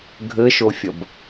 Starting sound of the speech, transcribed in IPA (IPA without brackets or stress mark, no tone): ɡʱ